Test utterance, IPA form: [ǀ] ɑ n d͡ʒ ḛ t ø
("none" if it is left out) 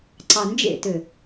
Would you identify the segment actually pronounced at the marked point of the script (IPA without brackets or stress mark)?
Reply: ǀ